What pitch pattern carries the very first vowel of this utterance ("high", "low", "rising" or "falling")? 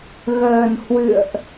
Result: low